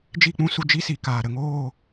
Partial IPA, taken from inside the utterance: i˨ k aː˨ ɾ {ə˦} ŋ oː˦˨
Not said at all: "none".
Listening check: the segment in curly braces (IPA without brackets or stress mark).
ə˨